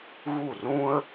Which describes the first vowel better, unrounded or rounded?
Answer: rounded